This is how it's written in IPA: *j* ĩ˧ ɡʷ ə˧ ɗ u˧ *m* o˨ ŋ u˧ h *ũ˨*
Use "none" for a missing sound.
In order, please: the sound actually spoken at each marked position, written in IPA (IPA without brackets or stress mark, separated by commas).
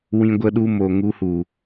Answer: w, m, u˨